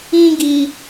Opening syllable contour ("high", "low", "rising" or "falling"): high